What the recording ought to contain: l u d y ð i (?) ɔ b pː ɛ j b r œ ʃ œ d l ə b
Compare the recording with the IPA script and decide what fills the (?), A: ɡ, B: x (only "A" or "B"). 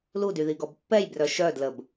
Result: A